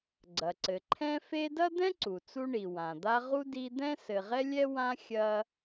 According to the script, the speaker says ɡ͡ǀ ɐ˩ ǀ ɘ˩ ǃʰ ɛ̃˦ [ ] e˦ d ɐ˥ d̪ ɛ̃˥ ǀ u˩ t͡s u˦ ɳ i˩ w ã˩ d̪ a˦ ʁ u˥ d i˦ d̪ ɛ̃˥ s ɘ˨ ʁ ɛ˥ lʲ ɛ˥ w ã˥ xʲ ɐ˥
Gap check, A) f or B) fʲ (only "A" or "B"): A